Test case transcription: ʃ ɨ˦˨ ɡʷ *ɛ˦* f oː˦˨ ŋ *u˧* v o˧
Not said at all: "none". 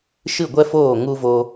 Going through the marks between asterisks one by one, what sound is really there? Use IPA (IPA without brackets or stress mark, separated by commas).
ɛ˦, u˧